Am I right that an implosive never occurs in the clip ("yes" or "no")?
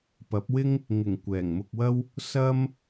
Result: yes